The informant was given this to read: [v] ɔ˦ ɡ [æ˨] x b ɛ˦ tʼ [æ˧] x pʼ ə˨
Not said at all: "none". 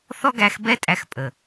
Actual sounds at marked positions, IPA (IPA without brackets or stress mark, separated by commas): θ, æ˧, æ˧